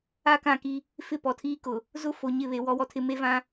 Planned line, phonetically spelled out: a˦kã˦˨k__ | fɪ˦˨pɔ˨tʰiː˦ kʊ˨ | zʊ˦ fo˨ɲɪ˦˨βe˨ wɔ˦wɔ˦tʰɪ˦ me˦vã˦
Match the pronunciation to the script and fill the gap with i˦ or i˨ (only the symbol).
i˦